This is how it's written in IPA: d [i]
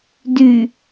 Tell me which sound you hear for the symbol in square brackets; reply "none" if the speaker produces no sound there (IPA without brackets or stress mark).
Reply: y